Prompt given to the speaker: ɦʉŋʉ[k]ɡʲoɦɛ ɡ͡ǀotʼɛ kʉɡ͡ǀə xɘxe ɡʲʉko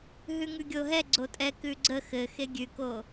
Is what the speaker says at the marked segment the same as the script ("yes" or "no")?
no